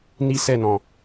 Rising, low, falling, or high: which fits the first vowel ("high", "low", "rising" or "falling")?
high